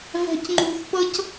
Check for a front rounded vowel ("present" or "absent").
absent